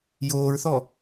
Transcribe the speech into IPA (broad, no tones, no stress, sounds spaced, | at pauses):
j oː ɹ θ ɔ